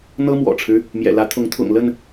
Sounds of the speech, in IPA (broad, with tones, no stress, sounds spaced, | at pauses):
n̪ ɤ˦ m w ɔ̰˨˩ ʈ͡ʂʰ ɻ̩˦ | m j ɛ̰˨˩ l ä˨˦ t̪ʰ ʊ˨˦ ŋ t̪ʰ ʊ̰˨˩ ŋ l ə˥˨ n